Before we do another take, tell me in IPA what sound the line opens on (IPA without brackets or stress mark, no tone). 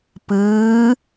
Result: p